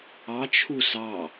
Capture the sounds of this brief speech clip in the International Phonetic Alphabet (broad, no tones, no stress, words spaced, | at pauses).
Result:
ɑ t͡ʃʰusɑ